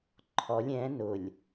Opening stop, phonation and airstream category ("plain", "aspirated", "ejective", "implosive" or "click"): click